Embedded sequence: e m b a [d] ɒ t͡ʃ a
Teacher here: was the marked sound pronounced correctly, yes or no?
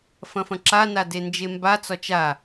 no